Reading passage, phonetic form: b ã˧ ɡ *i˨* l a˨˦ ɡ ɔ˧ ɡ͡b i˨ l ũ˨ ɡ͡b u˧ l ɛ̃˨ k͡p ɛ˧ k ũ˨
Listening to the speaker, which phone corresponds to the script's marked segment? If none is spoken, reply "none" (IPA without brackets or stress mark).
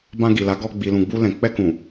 i˨